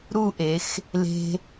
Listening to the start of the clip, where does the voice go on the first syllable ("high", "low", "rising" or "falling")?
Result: falling